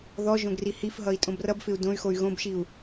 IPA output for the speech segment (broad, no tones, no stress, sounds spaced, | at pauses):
ð ɔ ʒ õ ɡ r i h i f ɦ ʌ i̯ tʼ õ b r ʌ b f ɪ u̯ d õ y̯ x o y̯ ɣ õ b ʃ i u̯